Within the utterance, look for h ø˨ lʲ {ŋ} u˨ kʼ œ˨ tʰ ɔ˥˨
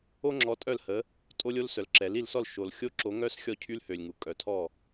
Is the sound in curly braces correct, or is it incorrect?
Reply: correct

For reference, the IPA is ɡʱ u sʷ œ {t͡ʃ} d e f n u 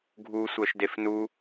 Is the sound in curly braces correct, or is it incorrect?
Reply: incorrect: ʃ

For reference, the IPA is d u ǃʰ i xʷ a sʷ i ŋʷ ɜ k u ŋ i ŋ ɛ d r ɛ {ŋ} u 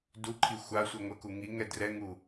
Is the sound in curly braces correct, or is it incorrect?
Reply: correct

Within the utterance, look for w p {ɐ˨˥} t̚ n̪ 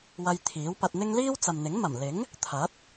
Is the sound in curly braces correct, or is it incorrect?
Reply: incorrect: ɐ˧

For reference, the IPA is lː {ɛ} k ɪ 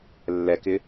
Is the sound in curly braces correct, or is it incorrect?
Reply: correct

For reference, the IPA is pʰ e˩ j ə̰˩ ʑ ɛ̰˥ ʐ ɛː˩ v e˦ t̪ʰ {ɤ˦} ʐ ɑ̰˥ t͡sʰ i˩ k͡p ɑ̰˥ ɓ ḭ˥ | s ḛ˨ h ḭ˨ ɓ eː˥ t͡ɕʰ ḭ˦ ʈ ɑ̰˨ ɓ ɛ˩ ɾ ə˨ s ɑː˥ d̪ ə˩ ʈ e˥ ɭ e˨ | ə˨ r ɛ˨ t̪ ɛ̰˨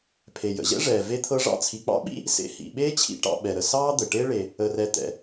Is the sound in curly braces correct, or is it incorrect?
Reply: correct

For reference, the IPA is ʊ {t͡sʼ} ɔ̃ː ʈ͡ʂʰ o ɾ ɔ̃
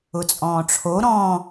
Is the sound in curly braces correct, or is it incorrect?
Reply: correct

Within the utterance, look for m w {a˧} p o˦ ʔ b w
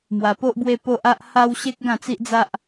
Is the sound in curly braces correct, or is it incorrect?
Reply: correct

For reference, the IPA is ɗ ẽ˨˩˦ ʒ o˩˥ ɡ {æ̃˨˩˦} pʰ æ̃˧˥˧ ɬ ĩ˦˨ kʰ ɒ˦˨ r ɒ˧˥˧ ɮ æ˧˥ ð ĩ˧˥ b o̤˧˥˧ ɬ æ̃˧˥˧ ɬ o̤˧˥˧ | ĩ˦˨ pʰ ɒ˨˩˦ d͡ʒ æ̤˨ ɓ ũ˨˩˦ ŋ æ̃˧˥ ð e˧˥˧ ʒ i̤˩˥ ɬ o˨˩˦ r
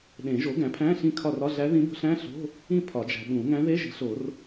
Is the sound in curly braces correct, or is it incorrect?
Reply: incorrect: æ̃˩˥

